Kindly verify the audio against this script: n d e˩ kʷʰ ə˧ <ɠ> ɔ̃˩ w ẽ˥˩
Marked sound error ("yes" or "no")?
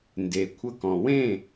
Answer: yes